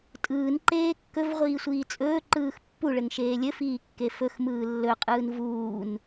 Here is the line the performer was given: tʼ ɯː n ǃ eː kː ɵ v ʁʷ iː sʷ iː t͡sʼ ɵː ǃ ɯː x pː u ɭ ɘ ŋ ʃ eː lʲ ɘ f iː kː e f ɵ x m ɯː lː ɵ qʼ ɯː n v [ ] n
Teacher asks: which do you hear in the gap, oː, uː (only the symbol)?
uː